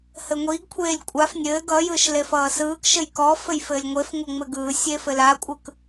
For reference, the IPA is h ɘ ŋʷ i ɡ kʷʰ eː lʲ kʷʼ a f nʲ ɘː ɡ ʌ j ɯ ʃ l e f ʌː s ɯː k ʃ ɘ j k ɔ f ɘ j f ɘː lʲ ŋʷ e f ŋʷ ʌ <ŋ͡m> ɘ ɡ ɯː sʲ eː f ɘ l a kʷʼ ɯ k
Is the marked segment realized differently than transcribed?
no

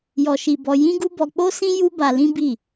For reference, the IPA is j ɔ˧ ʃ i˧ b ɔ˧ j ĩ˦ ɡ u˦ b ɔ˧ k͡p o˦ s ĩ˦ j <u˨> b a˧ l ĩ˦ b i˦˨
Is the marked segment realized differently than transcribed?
yes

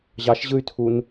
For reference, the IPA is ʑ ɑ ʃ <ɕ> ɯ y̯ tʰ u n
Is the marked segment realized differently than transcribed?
yes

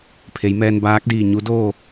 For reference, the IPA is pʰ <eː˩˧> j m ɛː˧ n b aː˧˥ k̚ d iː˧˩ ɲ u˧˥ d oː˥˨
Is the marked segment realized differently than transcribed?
yes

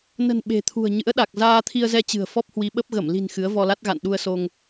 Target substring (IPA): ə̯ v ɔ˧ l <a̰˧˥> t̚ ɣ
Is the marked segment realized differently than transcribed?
yes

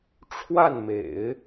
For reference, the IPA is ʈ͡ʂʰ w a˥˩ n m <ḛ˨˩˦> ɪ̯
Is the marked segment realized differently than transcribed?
no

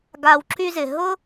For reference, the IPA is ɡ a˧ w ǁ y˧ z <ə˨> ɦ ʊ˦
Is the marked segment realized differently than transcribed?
yes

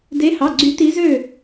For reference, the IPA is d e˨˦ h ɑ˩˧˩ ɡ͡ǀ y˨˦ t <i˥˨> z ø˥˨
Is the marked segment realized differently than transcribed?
yes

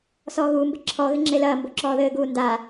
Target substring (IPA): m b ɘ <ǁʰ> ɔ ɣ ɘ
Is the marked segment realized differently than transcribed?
no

